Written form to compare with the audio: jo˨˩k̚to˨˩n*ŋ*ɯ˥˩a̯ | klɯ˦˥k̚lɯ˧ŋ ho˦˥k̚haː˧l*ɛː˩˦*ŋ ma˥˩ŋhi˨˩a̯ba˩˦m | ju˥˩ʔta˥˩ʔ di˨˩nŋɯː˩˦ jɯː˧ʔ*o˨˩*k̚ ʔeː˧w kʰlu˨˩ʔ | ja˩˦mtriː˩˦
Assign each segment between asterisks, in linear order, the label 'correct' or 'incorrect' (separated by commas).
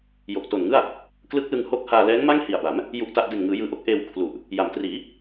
correct, incorrect, incorrect